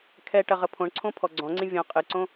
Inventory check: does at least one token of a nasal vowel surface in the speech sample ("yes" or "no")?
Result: yes